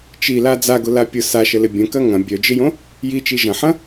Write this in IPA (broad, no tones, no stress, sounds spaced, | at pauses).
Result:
t͡ʃ i l a d͡z a ɡ ʊ l a pʲ ʊ s a ʃ ə l ɪ bʲ ə̃ k ɐ ŋ ɐ̃ bʲ œ d͡ʒ ɪ j õ | j i t͡ʃ i ʒ ɐ̃ ħ ɐ̃